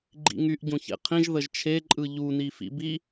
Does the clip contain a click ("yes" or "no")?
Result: yes